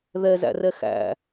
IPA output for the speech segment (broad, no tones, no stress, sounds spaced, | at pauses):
ð ɛ z æ̰ r ɛ x æ̰